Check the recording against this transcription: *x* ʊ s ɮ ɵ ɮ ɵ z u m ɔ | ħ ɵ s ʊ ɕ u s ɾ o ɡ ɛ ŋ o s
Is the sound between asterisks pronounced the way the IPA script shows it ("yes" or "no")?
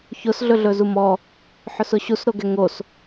no